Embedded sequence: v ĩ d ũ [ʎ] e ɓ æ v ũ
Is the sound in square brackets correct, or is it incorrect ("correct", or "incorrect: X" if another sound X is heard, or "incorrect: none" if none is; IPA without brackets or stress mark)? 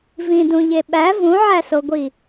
correct